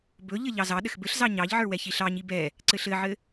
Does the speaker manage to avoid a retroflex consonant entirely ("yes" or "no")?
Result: yes